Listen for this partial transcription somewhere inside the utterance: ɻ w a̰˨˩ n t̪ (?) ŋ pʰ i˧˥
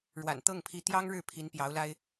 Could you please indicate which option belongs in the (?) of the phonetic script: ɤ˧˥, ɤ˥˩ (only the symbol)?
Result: ɤ˥˩